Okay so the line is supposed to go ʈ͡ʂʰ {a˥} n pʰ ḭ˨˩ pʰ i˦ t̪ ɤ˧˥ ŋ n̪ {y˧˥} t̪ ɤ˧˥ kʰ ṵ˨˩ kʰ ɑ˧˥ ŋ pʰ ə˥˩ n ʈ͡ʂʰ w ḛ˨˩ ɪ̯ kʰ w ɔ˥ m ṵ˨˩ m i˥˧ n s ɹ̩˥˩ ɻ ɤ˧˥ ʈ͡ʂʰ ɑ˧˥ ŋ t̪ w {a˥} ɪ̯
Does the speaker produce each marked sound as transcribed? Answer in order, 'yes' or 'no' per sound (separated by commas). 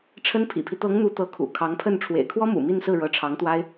no, no, yes